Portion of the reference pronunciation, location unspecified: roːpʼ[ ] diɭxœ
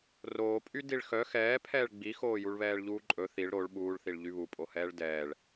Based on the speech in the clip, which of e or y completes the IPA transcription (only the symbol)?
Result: y